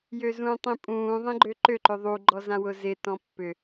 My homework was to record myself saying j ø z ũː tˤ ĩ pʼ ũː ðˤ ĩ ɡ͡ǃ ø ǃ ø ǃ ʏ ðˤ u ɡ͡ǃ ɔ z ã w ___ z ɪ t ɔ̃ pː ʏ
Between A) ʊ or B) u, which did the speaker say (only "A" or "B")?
A